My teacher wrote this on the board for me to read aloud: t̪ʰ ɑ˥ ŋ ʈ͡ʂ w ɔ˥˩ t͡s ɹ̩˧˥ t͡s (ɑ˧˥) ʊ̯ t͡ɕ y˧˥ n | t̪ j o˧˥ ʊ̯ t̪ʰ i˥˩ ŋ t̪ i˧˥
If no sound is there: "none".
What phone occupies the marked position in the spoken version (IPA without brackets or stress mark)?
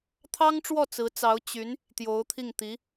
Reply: ɑ˧˥